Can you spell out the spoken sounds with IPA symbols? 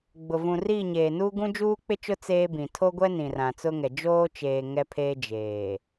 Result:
ɡ͡b ʊ˨ v ũ˨ r iː˦˨ ɲ eː˨ n uː˦ ɡ ũ˦ d͡ʒ uː˦ k͡p ɪ˦ t͡ʃ ʊ˦ t͡s eː˦ b ĩ˨ tʰ o˦ ɡʷ ɛ˦ n ĩ˨ r ã˨ t͡s ʊ˦ ŋ ɛ˨ d͡ʒ oː˦ t͡ʃ eː˨ ŋ ɛ˦ pʰ eː˦ d͡ʒ eː˨

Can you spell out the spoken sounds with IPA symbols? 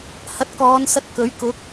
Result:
h ɐ˨˥ t̚ k ɔː˨˧ n s ɐ˧ t̚ k ɵ˨˥ ɥ k ʊ˨˥ k̚

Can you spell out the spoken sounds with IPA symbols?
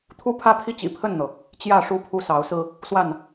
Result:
t̪ʰ u˦ pʰ ä˦ pʰ i˦ t͡ɕ ḭ˨˩ pʰ ə˥˨ n n̪ ɤ˩ | t͡ɕ j ä˥˨ ʂ u˥˨ pʰ u˥˨ s ɑ˨˦ ʊ̯ s ɹ̩˦ | s w a˥˨ n

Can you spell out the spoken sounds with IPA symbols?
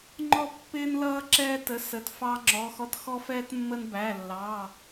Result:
ŋ͡ǃ ɔ˥ pː ɪː˥ n l ʌː˥ ǁ ɛː˥ t ə˧˥˧ s ə˧˥˧ t f ɑ˥ ŋ͡ǁ ɔ˧˥˧ x ɔ˥ t x ɔ˥ f ɛː˥ t mː ə˥ n b æ˧˥˧ lː ɑ˧˥˧

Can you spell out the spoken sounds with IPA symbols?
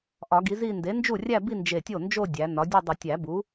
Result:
ʔ ɒ˨˩˦ ɡ i˩˥ z i˥˧ n d e˩˥ n d͡ʒ u˥˩ rʲ æ˥˧ b i˥˧ n d͡ʒ e˧˩ tʲ o˥˩ n d͡ʒ o˥˧ dʲ æ˩˥ n ɒ˩˥ dʲ u˥˧ dˤ i˨˩˦ tʲ æ˨˩˦ b u˩˥

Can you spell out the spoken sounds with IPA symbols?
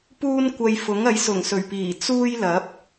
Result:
p uː˥ n kʷ ɐ˧ j f ʊ˨˥ ŋ ɐ˨˥ j s ʊ˨˩ ŋ s ɵ˨˩ ɥ p iː˨˩ t͡s uː˥ j l ɐ˨˥ p̚

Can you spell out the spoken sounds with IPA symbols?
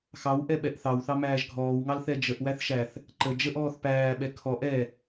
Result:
x ɑ w ʔ ɛ ɓ ɛ ʔ θ ɑ w θ ɑ m æː ʒ ɡʱ ɔː w ŋ ɑ l θ ɛ d͡ʒ ə ʔ w æ θ ʃ æ θ | ǃ ə d͡ʒ ə ʔ ɔː θ p æː ɓ ɛ kʰ ɔ ʔ ɛ

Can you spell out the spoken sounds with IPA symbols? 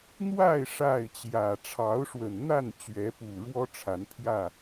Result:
n̪ w a˥˨ ɪ̯ ʂ a˥˨ ɪ̯ t͡ɕ j ä˨˩ ʈ͡ʂʰ ɑ˨˦ ʊ̯ ʂ w ə˨˩ n n̪ a˥˨ n t͡ɕ ɥ ɛ˨˦ p u˨˩ ɻ w ɔ˦ ʈ͡ʂʰ a˨˦ n pʰ j ä˥˨

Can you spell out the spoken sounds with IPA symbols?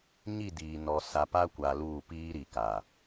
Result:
ɲ i˦˨ d iː˨ n ɔ˨ s a˨ p a˦ kʷ a˨ l uː˦˨ p iː˦ ɾ i˨ k a˨

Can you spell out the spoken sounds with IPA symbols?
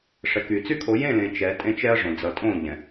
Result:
ʂ ɛ˨ k y˨ t͡s y˦ kʰ o˨˦ j ẽ˦˨ l ẽ˨ t͡ʃ ɛ˨˦ tʼ ẽ˦ t͡ʃ ɛ˦ ɐ̯ ʐ õ˨ d͡z ʌ˨ tʼ õ˦˨ ʎ ɛ̃˨

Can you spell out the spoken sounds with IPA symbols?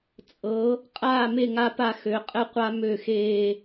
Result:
t͡sʼ ɤ˨˦ | qʼ aː˦˨ m e˦˨ ŋ a˦ p a˦˨ x ø˨˦ qʼ ɘ˦ qʷ a˦ m ø˦˨ x eː˦

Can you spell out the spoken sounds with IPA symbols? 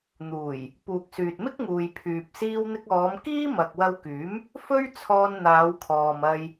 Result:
n̪ uː˨˩ j | p uː˨ k̚ s yː˨ t̚ m ɪ˥ k̚ ŋ uː˨ j pʰ yː˨ p̚ s iː˧ w n̪ ɪ˧ k̚ ɔː˨˧ m k iː˥ m ɐ˨ k̚ w ɐ˧ w k yː˨˥ m | f ɵ˥ ɥ t͡sʰ ɔː˧ n n̪ aː˨˧ w kʰ ɔː˨ m ɐ˧ j

